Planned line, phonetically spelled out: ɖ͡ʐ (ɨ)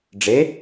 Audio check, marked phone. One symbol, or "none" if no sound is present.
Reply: e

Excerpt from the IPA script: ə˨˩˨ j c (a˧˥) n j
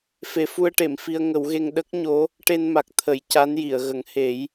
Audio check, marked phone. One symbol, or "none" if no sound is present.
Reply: a˧˥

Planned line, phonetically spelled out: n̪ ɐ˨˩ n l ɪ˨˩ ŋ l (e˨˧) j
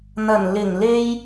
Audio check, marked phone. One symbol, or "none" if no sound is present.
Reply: e˥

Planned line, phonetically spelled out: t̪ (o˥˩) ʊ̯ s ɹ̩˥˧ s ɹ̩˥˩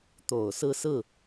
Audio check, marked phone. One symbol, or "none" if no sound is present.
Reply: o˨˩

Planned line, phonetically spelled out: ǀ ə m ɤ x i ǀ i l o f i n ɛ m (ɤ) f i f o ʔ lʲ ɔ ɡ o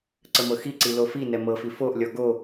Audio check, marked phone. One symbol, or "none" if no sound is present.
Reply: ɤ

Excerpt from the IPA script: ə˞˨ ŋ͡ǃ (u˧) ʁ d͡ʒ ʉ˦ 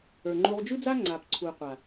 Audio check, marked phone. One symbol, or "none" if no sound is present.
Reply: u˧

